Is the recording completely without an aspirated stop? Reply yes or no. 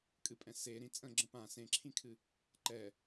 no